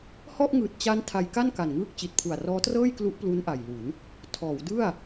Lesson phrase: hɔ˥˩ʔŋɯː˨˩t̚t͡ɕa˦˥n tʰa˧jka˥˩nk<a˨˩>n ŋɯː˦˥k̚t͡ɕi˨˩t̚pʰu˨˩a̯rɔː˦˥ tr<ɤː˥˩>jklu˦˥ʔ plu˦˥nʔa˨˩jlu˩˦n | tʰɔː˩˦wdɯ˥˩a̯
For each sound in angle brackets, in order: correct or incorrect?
correct, correct

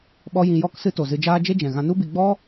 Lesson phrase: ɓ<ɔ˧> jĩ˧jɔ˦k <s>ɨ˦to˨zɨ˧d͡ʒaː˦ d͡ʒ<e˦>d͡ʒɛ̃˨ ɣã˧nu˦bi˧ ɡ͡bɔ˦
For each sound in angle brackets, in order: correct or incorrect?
correct, correct, correct

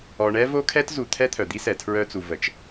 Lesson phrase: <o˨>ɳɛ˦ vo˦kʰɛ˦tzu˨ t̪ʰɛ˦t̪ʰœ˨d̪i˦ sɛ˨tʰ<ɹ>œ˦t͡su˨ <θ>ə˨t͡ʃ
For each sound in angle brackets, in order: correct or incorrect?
incorrect, correct, incorrect

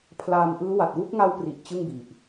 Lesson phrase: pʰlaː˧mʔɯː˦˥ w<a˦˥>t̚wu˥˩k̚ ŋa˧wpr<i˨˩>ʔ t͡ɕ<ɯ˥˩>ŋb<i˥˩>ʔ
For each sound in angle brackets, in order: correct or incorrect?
incorrect, correct, correct, incorrect

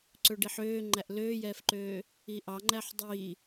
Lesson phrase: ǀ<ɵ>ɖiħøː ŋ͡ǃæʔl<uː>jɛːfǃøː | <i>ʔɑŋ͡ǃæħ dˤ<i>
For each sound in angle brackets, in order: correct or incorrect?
correct, incorrect, correct, incorrect

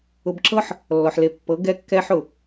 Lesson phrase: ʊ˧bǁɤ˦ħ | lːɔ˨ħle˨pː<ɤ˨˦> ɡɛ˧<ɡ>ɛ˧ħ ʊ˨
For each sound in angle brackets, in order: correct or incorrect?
correct, incorrect

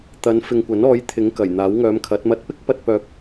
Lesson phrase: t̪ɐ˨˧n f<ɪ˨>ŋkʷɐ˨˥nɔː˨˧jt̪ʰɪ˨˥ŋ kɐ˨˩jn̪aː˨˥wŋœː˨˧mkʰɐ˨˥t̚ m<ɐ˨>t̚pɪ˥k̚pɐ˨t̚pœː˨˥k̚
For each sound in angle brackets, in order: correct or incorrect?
correct, correct

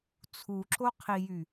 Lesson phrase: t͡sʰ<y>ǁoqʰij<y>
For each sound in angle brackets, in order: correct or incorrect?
incorrect, correct

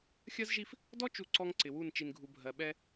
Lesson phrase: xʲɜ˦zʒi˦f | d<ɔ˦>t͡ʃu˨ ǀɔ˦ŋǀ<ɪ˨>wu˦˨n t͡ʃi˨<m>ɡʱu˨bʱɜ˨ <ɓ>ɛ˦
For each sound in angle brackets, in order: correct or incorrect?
correct, correct, incorrect, correct

